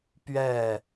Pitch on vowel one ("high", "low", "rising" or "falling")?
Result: falling